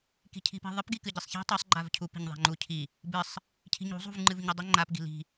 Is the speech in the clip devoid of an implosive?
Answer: yes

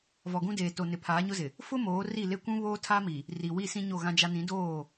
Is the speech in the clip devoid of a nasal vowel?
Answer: no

